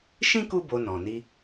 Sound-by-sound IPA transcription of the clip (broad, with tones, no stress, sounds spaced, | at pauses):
ʃ ĩ˦ k u˦ b o˧ n ɔ̃˨ n i˧